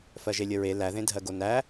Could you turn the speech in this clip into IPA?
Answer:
f ɜ ʒ e lʲ ə ɹ e l æ ð ẽ dʱ ɜ ɡ o n æ

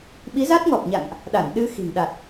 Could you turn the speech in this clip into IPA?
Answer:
ɓ i˨˦ z a˦˥ t̚ ŋ ɔ˨˩ p̚ ɲ a̰˧˨ ŋ ʔ | ɗ a˧˩ n ɗ ɨ˧ x i̤˨˩ ŋ ɗ a˨˩ t̚

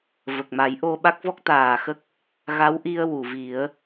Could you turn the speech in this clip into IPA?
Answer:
v ə˨˩ k̚ m a˨˩˦ j ʔ o˧ ɓ a˦˥ k̚ v ɔ˦˥ k̚ t̪ aː˨˩ x ə˦˥ k̚ | ɣ a˧˥ w ʔ i˧ ə̯ w u˨˩˨ v i˨˩˦ ə̯

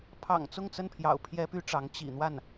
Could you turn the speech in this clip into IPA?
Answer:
pʰ ɑ̰˨˩ ŋ t͡s ʊ˥˧ ŋ t͡s ə˥˩ n pʰ j ɑ̰˨˩ ʊ̯ pʰ j ɛ˥ p y˥ ʈ͡ʂ ɑ˧˥ ŋ t͡ɕ ḭ˨˩ n̪ w a˥˩ n

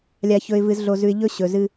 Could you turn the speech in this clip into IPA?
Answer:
lʲ a˨ ç ɵ˨ ɪ̯ v ɨ˨ z ɮ o˨ z ʉ˨ ɪ̯ ʎ ɵ˦ ɕ ɵ˨ z ɨ˦

